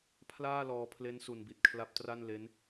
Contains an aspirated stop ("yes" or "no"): yes